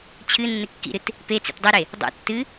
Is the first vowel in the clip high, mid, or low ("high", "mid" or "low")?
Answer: high